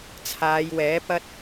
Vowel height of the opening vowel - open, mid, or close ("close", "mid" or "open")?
open